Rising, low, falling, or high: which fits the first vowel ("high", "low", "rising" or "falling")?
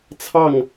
falling